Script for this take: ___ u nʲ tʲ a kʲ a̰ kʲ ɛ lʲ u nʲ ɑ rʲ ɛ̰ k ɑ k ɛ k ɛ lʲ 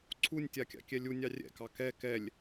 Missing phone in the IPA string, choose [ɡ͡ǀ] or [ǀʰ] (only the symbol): ǀʰ